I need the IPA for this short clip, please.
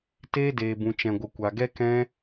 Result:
t eː˦ d eː˨ b ũ˨ t͡ʃ ɛ̃˨ ɡʷ ə˨ kʷ a˨ ɡ ɛ˦ k ɛ̃˦

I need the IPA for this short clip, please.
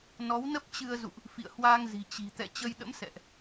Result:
n ɔ˨˦ w n ə˦˥ p̚ t͡ɕ ɨ˧ ə̯ z ṵ˧˨ ʔ | f ḭ˧˨ ə̯ h w aː˧ ŋ z i̤˨˩ t͡ɕ i̤˨˩ t̪ ɛ̰˧˨ t͡ɕ ə˧ j ɗ ə̰˧˥ m s ɛ̰˧˨ ʔ

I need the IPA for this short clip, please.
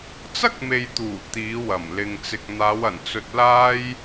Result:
t͡s ɐ˥ k̚ m e˨ j t̪ uː˨˩ t̪ iː˨˧ w ɐ˨˩ m l ɪ˨ ŋ t͡s ɪ˨ k̚ n̪ aː˨˧ w ɐ˨˩ n t͡s ɵ˧ t̚ l aː˥ j

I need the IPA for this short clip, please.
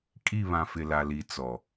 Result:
kʼ i˦˨ β ã˨ f ɪ˨ l a˨ l i˨ t͡s ɔ˨

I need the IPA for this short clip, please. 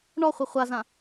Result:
ɳ ɔ χʷ i χʷ a z ã

